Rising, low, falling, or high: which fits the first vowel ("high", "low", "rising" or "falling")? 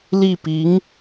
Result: falling